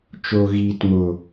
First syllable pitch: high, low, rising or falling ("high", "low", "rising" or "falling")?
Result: low